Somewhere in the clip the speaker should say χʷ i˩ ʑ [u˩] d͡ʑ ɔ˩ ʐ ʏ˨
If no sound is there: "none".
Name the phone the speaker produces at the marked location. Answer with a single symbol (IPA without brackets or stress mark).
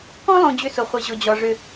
ʊ˩